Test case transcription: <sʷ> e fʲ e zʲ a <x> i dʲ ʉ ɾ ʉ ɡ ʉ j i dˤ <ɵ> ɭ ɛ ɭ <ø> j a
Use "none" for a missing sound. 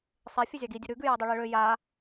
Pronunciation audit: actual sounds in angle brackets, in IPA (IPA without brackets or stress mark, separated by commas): sˤ, ɡ, ɵ, ø